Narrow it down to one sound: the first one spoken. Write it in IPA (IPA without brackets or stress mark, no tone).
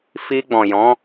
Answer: f